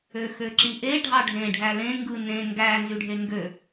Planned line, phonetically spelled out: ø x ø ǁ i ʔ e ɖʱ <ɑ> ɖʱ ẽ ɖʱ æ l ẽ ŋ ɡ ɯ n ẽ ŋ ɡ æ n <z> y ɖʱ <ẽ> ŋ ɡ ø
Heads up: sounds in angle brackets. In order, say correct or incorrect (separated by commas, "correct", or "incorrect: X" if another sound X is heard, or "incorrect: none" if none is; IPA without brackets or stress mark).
correct, correct, incorrect: e